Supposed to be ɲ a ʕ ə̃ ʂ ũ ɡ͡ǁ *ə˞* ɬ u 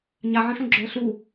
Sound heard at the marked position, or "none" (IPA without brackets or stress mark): ə˞